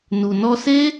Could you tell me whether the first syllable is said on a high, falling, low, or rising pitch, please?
low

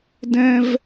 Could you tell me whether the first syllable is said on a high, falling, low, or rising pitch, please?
high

